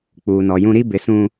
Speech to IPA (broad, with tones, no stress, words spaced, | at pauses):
k͡puː˨nɔ˨jũ˦ ɾi˦ bɪ˨ sũ˨